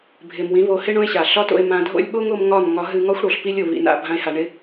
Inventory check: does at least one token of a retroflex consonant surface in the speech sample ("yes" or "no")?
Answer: yes